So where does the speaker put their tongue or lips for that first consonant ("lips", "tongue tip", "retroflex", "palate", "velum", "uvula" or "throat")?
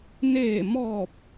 tongue tip